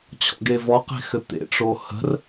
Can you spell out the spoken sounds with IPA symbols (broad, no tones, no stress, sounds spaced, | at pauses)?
t͡ɕʰ ɔ̰ ɡ e v ɔ q e̤ x ɘ t̪ ḛ ʈ͡ʂ o h ə̤ r